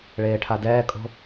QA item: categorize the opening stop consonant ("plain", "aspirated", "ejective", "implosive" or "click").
aspirated